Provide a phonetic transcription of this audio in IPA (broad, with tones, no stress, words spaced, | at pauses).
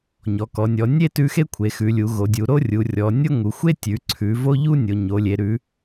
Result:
ɲɔ˩˧kɔ˩˧nʲɔ˩˧ nʲe˥ tʉ˥ xe˥kʷʰe˩˧xʉ˩˧lʲu˩˧ ɣo˩˧dʲu˩˧ɾo˥ rʲu˩˧rʲɔ˩˧ nʲo˥ŋu˩˧ xʷe˥tʲʉ˩˧ ǀʰʉ˩˧ vo˥ʎu˥ nʲo˩˧ɲo˩˧lʲe˩˧ ɾʉ˩˧